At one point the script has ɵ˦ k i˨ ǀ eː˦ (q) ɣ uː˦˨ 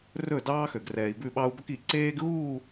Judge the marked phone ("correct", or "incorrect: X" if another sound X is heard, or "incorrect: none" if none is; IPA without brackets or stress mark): incorrect: ɡ